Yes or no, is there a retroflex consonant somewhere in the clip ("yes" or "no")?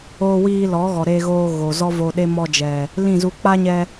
no